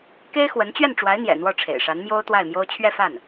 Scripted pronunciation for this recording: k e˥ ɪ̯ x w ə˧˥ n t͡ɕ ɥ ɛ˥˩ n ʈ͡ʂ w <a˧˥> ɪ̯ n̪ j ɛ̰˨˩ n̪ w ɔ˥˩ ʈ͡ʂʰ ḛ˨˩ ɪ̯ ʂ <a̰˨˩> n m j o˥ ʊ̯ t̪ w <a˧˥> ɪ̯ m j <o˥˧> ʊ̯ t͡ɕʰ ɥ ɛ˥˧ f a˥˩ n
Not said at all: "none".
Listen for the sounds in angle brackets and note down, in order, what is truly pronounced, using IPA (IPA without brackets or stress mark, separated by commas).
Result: a˧˥, a˧˥, a˥˩, o˥